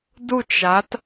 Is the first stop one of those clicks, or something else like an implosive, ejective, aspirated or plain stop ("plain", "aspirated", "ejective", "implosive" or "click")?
plain